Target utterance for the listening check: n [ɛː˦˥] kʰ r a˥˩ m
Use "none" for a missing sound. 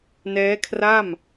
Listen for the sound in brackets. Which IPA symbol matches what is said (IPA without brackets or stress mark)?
ɛː˦˥